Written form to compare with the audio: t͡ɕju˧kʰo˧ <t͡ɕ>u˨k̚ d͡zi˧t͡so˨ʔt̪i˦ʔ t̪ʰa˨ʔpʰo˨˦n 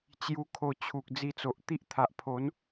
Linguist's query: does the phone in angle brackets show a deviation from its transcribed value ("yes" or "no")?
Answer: yes